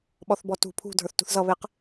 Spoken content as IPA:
ɓ ɔ θ b ɔ t ṳ pʰ ṳ dʱ ə˞ θ t ṳ θ z ʌ β e q

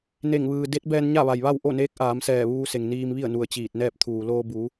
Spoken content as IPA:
n e˧˩ ŋ ʋ ɯː˩ d e˧˥ t̚ b ɛː˧ n ɲ a˥˨ ʋ a˩ j ʋ a˥˨ w ʔ o˥˨ n eː˧˥ k̚ ʔ aː˩˧ m s ɛː˧˩ ʋ uː˧ s e˩ ŋ n iː˧ m ʋ i˥˨ ə̯ n u˧˩ ə̯ t͡ɕ iː˧˩ t̚ n ɛː˥˨ p̚ t̪ʰ uː˩ l oː˧ b u˩˧

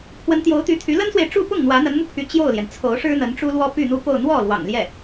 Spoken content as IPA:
pʰ w ə˧˥ n t̪ j o˧˥ ʊ̯ t̪ y˧˥ t̪ʰ y˧˥ l ə˥ n s w e˨ ɪ̯ ʈ͡ʂ u˥˧ p ʊ˥˩ ŋ n̪ w ä˧˥ n̪ ə˧˥ n m u˧ pʰ y˧˥ t͡ɕ j o˥˩ ʊ̯ l j ɛ˩ n t͡sʰ o˧˥ ʊ̯ ʂ ɻ̩˥ n̪ ə˧˥ n ʈ͡ʂ u˥ l w ɔ˥ p y˥˧ n̪ u˥˧ p o˥˧ ʊ̯ n̪ w ɔ˥˩ l w ɑ̰˨˩ ŋ l j ɛ˥˩

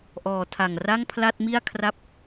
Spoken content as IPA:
ʔ ɔː˨˩ tʰ a˨˩ ŋ r a˥˩ ŋ pʰ l a˥˩ t̚ m i˥˩ a̯ kʰ r a˥˩ p̚

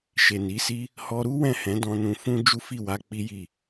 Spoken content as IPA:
ʃ e˨ n i˨˦ s i˦ | h ɔ˧ ɾ u˦ w ɛ̃˦˨ h ɛ̃˨˦ d ɔ̃˧ n ũ˧ f ũ˦ d͡ʒ u˦ f i˦˨ w a˧ k͡p i˦ j i˦˨

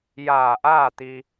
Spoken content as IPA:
j aː˧˩ ʔ aː˥˨ t̪ i˧

